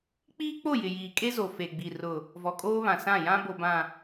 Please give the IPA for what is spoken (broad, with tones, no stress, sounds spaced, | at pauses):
k͡p iː˦ k͡p o˦˨ j ɪ˨ j iː˨ kʼ e˦ z o˨ f e˨ ɡ͡b i˨ r ʊ˨ | v ɔ˨ kʼ oː˦ β ã˨ s ã˦˨ j ã˦ b o˨ b ã˨